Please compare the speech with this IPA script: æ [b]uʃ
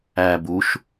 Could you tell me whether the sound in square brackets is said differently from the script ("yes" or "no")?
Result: no